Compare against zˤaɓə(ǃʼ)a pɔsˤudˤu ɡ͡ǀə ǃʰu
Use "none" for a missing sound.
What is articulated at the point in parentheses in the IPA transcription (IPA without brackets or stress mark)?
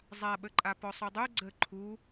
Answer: ǃʼ